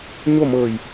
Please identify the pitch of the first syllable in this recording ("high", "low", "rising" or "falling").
falling